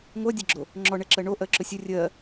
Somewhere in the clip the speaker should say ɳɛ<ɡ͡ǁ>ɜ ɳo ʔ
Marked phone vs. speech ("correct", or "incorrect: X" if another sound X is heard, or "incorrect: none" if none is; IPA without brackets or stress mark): incorrect: ǁ